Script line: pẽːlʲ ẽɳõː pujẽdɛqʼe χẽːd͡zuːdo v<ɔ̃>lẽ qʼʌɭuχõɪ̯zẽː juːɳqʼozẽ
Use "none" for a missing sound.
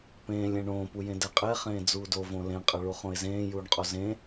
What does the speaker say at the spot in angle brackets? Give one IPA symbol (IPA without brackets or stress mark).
õ